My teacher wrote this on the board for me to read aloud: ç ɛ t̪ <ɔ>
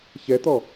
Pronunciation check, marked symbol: correct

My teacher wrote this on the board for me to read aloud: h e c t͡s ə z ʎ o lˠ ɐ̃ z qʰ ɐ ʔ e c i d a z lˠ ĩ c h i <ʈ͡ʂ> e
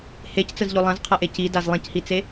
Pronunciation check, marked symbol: incorrect: t͡s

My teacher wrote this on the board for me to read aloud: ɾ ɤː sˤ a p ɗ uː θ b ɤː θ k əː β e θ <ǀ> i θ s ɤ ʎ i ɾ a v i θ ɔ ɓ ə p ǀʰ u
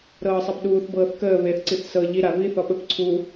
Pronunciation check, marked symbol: correct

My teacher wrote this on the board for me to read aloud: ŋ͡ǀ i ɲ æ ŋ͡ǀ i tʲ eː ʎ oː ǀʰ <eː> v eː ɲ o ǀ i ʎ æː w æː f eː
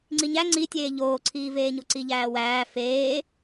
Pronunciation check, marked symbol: incorrect: iː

